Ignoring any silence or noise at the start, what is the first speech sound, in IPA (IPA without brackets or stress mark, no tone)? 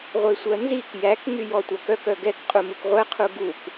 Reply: ʁʷ